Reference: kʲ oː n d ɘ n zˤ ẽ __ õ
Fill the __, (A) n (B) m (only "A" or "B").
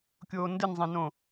A